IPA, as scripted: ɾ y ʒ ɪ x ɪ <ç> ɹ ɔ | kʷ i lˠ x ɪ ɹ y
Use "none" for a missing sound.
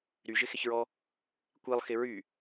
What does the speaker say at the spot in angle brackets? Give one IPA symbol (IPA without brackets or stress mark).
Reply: ç